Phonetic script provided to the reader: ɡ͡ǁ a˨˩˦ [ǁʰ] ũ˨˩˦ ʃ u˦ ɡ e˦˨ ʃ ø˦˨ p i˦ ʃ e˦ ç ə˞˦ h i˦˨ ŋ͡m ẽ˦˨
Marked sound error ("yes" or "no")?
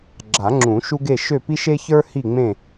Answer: yes